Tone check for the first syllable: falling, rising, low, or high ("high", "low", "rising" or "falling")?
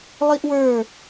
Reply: high